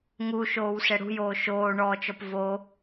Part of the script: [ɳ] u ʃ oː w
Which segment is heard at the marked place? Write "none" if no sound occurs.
ŋ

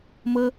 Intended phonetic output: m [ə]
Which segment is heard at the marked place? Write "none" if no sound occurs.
ə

